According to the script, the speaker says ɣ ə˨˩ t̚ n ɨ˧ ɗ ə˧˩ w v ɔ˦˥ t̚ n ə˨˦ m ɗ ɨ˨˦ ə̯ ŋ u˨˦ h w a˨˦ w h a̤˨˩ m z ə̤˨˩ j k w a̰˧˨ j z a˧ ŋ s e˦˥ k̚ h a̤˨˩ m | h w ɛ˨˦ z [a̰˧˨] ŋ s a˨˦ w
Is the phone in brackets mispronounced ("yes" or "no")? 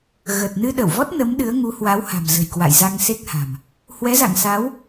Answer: no